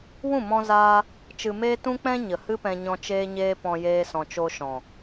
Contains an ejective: no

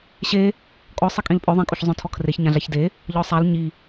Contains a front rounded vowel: yes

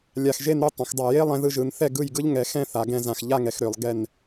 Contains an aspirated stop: no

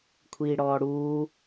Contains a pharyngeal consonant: no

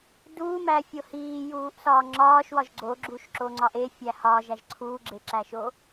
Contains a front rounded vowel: no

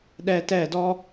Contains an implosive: yes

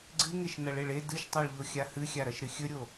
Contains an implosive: no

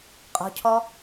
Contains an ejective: yes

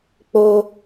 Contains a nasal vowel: no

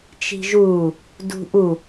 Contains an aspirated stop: no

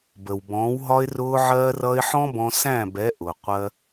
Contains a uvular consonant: yes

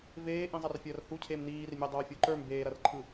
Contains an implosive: no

